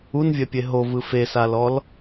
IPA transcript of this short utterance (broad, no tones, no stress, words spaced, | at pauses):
unvʲɛpʲe ɦovɯ fesalɔl